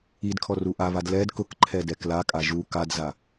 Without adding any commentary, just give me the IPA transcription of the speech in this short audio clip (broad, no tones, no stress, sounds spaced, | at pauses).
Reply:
i d kʰ ɔ r u ʔ a β a d l ɛ d k ʊ k ǃʰ ɛ d ɛ k l a kʼ a ʒ u k a d z a